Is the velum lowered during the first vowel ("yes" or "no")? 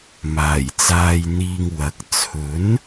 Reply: no